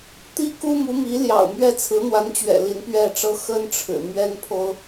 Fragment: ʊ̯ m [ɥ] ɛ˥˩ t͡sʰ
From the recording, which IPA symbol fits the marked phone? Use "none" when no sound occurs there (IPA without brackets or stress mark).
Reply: ɥ